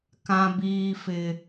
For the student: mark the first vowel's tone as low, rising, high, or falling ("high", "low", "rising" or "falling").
high